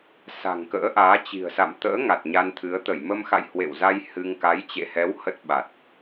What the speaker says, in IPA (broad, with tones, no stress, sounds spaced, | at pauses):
s a̤˨˩ ŋ k ə̰ː˧˥ ʔ aː˨˦ t͡ɕ i̤˨˩ ə̯ s a̰˧˨ m t̪ ə̰ː˧˥ ŋ a˨˩ t̚ ɲ a˧ n t̪ʰ ɨ˨˦ ə̯ t̪ ə˧˩ j m ə˧ m x a̰˧˨ j h w ḛ˧˨ w z a˧ j h ɨ˧ ŋ k a˨˦ j t͡ɕ ḛ˧˨ h ɛ˨˦ w h ə˦˥ t̚ ɓ a˨˩ t̚